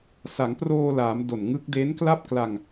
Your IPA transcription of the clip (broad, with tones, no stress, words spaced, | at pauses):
sa˩˦ŋproː˧laː˩˦m do˨˩nŋɯ˦˥k̚ de˦˥nkla˥˩p̚kla˧ŋ